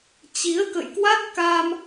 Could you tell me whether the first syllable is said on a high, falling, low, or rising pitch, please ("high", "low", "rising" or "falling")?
rising